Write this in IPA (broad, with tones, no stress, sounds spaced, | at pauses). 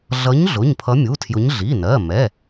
ɮ ʌ˨˦ ɲ ɮ ʊ˩˧˩ ɲ pʰ ʌ˨˦ mʲ u˩˧˩ tʰ j ʊ˨˦ ɲ ɮ i˩˧˩ n ɜ˩˧˩ m ɛ˩˧˩